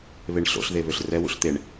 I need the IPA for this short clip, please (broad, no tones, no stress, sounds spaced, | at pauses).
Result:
β e ɳ ɬ o̰ ɬ ð e β ø ɬ r ɛ w ṵ ɬ t̪ e ɳ